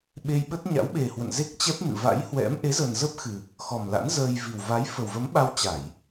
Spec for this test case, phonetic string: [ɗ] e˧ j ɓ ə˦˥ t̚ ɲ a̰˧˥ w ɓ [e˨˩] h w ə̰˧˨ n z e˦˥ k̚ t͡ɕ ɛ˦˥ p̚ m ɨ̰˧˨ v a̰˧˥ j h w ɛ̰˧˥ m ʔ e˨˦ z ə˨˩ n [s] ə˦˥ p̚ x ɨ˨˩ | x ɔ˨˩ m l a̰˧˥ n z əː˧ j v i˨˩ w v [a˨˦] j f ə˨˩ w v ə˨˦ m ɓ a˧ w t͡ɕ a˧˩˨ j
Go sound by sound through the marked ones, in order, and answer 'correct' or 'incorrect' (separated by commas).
incorrect, correct, incorrect, correct